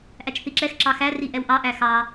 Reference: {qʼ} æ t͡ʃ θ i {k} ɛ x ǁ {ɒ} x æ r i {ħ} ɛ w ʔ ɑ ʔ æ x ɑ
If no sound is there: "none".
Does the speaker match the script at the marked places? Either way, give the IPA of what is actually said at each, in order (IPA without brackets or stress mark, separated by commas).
ʔ, ǁ, ɑ, ʔ